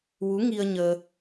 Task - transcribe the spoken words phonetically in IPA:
w u˧˥ ŋ i˧ ə̯ ɲ əː˧

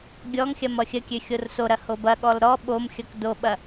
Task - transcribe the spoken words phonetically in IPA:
ɡʲ ɔ ŋ xʲ ɐ m ʌ xʲ ə kʲ ø xʲ o r s o ɾ ɐ h o b ɐ ɠ ɔ l ɾ ɔ ɓ o m xʲ ʌ k d o ɓ ɐ

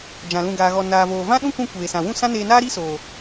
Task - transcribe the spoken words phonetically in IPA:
d͡ʒ ã˨ l ũ˨ ɡ aː˨ ɣ ɔ˨ n aː˨ v oː˨ v ã˦ ɗ ũ˦ k ũ˧ kʷ eː˨ s ã˨ w ũ˦˨ s ã˦ n eː˧ n aː˦ ɾ i˦ s oː˨

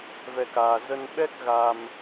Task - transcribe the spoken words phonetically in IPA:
v ɛ˧ k aː˨˩ z ə˧ n ɓ ɛ˦˥ k̚ ɣ a˧ m

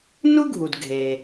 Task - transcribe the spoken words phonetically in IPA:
n u˥ ɡʱ u˩ d ɡʱ eː˩

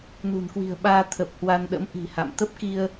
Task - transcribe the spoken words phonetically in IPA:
n ṳ˨˩ n k w i̤˨˩ ə̯ ɓ aː˧ t̪ʰ ə˨˩ p̚ h w a˧ n ɗ ə̰˧˥ m ʔ i̤˨˩ h a̰˧˨ m t̪ ə˦˥ p̚ k i˧ ə̯

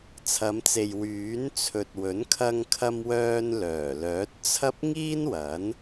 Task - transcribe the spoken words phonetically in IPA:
t͡sʰ ɐ˨˧ m t͡s e˨ j w yː˨˥ n t͡sʰ ɵ˨ t̚ w ɵ˨˥ n kʰ ɐ˧ ŋ kʰ ɐ˥ m w œː˥ n l œː˨˩ l œː˨˥ t̚ t͡sʰ ɐ˥ p̚ ŋ iː˥ n w ɐ˨˥ n

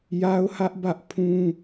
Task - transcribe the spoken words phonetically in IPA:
j a˦ ʊ̯ h ä˦ ʔ b ä˦ ʔ pʰ ũ˦

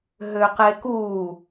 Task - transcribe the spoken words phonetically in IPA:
ɦ ø q e k u

